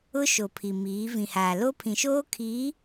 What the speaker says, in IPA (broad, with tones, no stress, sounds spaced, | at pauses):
ʊ˦ ʃ o˨ pʰ i˨ m iː˨˦ v ĩ˨ h aː˨ l o˦ pʰ ĩ˨ ʃ oː˦ kʰ iː˨˦